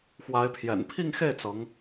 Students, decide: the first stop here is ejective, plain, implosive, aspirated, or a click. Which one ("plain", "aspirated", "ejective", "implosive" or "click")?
aspirated